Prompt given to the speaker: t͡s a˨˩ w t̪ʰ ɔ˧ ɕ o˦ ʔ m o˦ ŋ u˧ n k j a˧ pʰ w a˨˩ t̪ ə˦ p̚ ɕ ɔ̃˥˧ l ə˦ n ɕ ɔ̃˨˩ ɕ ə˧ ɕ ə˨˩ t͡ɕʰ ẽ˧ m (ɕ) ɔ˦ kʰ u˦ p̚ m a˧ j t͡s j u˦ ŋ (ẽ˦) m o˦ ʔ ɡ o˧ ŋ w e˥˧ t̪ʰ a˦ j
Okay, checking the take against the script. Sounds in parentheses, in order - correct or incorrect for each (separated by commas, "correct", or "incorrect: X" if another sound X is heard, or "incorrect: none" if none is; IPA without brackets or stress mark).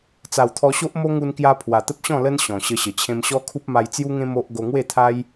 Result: correct, correct